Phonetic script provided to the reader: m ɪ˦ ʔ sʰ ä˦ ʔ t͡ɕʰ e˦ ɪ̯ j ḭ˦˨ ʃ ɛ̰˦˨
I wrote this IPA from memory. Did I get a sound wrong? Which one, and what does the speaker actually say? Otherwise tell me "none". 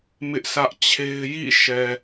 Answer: ɛ̰˦˨ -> ɛ˨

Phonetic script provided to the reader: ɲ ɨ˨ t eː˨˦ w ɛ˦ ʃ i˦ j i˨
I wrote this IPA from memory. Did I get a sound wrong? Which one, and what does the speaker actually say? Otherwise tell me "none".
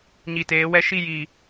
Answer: ɨ˨ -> i˨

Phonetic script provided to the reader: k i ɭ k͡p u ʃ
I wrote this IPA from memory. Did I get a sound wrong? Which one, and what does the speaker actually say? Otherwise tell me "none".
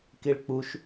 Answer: none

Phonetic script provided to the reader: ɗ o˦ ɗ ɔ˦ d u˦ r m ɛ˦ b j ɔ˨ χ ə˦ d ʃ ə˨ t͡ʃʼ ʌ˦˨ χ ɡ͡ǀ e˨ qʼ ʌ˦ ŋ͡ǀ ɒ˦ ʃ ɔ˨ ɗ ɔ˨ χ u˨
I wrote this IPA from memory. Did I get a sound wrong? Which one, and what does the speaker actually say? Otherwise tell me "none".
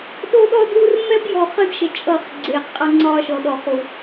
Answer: none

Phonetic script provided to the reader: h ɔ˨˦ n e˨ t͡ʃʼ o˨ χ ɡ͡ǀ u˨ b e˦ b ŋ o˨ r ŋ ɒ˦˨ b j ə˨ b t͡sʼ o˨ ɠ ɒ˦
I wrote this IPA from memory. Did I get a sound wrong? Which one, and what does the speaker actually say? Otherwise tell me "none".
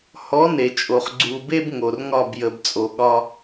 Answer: none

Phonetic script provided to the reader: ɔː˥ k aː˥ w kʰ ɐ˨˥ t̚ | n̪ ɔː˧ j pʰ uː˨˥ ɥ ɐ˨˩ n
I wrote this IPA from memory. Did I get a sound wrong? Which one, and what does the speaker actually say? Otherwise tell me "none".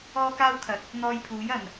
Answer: ɥ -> j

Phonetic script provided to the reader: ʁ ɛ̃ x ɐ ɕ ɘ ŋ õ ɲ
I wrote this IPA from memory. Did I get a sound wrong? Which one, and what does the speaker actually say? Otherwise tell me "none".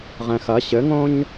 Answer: none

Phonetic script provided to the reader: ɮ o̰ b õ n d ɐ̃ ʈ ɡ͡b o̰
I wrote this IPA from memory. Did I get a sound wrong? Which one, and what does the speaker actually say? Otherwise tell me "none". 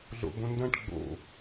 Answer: none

